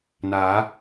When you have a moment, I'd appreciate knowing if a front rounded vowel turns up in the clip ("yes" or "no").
no